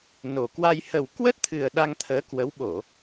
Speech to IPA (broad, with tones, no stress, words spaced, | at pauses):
no˨˩kwa˧j hə˨˩wkwə˦˥t̚t̪ʰɨ˨˩ə̯ ɗa˧ŋt̪ʰəː˨˦kwə˨˦w ɓo˧˩˨